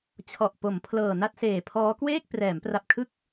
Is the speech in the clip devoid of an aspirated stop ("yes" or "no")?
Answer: no